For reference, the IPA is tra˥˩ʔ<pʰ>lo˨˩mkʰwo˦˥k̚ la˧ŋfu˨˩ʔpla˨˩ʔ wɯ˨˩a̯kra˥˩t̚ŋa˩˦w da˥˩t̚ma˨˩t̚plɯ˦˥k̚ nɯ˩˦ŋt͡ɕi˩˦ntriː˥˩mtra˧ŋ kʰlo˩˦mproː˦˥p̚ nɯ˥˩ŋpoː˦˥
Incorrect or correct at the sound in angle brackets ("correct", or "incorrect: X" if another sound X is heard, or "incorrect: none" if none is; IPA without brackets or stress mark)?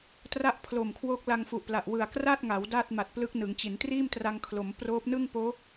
correct